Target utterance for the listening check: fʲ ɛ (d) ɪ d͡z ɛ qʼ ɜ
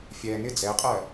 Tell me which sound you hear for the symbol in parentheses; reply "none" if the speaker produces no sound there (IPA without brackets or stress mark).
n